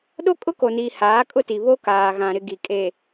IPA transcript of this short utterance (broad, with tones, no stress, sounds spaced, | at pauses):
ɗ o˦ kʼ ʊ˦ k o˨ n iː˨ h aː˨˦ kʼ ʊ˦ t i˨ β o˦ k aː˨ ɣ ã˨ ɾ ɪ˨ ɡ i˨ kʼ e˨